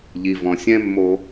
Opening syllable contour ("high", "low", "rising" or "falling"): low